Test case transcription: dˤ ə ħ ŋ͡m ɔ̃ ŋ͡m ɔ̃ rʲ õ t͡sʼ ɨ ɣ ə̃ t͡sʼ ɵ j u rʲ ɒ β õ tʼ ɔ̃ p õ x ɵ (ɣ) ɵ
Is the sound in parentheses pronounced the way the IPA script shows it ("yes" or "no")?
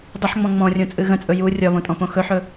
no